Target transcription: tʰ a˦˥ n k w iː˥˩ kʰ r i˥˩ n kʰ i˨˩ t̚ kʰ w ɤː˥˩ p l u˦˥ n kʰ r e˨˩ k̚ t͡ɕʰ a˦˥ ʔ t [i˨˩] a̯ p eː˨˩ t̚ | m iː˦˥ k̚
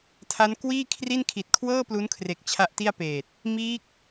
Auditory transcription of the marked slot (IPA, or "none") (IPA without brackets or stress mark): i˥˩